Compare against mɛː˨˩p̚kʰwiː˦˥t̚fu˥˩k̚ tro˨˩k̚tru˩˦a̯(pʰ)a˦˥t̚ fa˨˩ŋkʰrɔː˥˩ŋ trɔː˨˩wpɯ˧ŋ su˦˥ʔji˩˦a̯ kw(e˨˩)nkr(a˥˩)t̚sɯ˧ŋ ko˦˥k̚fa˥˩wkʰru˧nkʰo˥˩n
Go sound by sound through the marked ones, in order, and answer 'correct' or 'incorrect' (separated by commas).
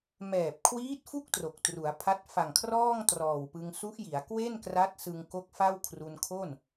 correct, incorrect, incorrect